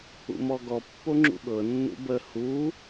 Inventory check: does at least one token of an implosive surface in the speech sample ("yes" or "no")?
yes